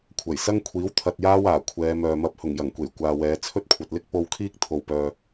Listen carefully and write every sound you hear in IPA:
kʷʰ ɐ˨˩ j s ɐ˥ ŋ kʷʰ iː˨˥ w t̪ʰ ɐ˧ t̚ j aː˥ w aː˨˩ kʷʰ ɛː˨˧ m œː˨ m ɐ˧ p̚ h ʊ˨˩ ŋ j ɐ˨˩ ŋ kʷ e˨˩ j kʷ aː˨ w ɛː˨˧ t͡sʰ ɵ˥ t̚ kʷʰ ɐ˨ t̚ l ɪ˥ k̚ p o˧ w kʰ iː˥ k̚ t̪ʰ o˨ w p œː˨

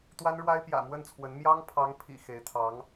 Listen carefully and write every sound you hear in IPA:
t̪ w a˥ n ɻ w a˥ ɪ̯ p j ä̰˨˩ m w ə˥˩ n t͡sʰ w ə˧˥ n m j ɑ˥ ŋ pʰ ɑ˧˥ ŋ pʰ ḭ˨˩ x e˧˥ ɪ̯ t̪ʰ ɑ˧˥ ŋ

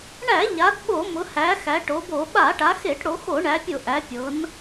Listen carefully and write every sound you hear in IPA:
ɳ æ˧˩˧ ʎ a˩˧ d ɓ o˧˩˧ m ʊ˩˧ h æ˩˧ x æ˩˧ ʈ o˩˧ b o˧˩˧ ɓ a˧˩˧ ʈ a˩˧ x e˧˩˧ ʈ ɽ o˩˧ x o˧˩˧ ɳ æ˩˧ pʲ ʊ˧˩˧ ʔ æ˩˧ pʲ ɤ˩˧ n

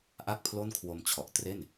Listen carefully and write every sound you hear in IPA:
ʔ a˥˩ k̚ pʰ l o˥˩ n kʰ w o˧ m t͡ɕʰ ɔ˨˩ ʔ t r e˥˩ n

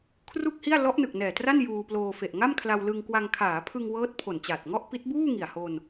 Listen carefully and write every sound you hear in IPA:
kʰ r u˥˩ k̚ h i˥˩ a̯ l ɔ˦˥ ʔ n ɯ˨˩ k̚ n ɛː˨˩ t r a˥˩ n j uː˧ p l oː˧ f e˨˩ ʔ ŋ a˥˩ m kʰ l a˧ w l ɯ˧ ŋ k w a˧ ŋ kʰ aː˩˦ pʰ ɯ˧ ŋ w ɤː˦˥ t̚ pʰ o˨˩ n t͡ɕ aː˨˩ t̚ ŋ ɔ˥˩ ʔ p i˦˥ t̚ b uː˥˩ ŋ i˨˩ a̯ h o˧ n

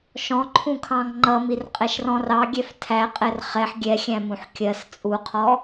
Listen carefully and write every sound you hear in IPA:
ʃ ɔ̃ ǃʰ ũ kʰ ɑ̃ ŋ ŋ͡ǃ ʌ m i r qʼ ɛ ʃ r ɔ̃ r ɑ ɡʲ ɛ f tʰ æ qʼ ɛ r χ ɛ ħ ɡʲ ɛ xʲ æ̃ m ũ ħ kʲ ɜ s t͡sʼ u qʰ ɔ

